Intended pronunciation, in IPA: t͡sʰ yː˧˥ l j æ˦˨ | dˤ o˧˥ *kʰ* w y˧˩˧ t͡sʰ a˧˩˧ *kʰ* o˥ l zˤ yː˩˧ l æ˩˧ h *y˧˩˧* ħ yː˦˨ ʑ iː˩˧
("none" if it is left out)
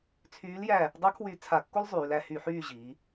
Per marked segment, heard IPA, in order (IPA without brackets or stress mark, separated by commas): kʰ, kː, y˧˩˧